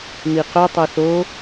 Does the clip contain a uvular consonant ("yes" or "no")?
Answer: yes